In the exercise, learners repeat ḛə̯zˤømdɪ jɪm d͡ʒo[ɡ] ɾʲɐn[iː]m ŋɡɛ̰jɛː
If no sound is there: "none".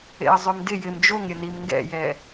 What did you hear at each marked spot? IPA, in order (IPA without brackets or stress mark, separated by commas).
ŋ, i